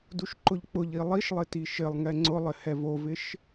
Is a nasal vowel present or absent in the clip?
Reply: absent